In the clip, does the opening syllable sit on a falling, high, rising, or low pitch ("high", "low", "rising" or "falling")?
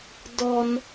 high